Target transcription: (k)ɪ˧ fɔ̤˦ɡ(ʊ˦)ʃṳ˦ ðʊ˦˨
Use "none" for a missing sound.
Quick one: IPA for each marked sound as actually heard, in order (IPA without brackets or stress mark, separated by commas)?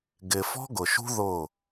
ɡ, ʊ˨